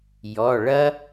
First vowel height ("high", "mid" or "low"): mid